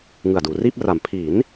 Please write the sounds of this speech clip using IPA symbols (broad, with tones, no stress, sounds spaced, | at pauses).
ŋ ɯ˨˩ a̯ d uː˩˦ r iː˥˩ p̚ r a˩˦ m pʰ iː˩˦ n